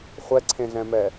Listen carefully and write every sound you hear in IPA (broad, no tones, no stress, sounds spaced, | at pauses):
χʷ ɛ ǀʰ ẽ ɮ ɛ̃ m ɛ